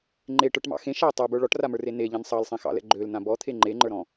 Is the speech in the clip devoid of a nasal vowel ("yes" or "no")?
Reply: no